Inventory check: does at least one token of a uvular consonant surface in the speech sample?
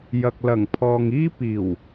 no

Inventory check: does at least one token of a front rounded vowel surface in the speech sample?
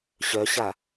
yes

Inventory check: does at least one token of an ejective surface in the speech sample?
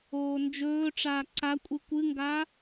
yes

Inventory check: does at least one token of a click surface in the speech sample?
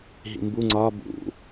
yes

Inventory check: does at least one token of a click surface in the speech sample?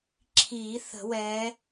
yes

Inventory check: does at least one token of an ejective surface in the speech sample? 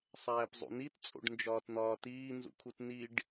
yes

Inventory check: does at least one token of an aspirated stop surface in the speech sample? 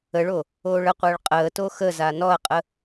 no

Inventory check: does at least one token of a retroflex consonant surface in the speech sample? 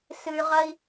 no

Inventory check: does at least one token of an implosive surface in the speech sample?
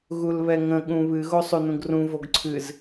yes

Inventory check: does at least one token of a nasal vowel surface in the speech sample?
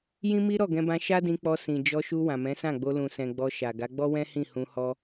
yes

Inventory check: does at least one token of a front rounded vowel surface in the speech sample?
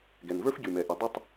yes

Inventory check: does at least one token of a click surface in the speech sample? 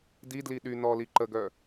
yes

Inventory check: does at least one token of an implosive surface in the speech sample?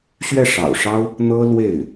no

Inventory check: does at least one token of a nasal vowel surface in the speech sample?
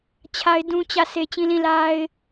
yes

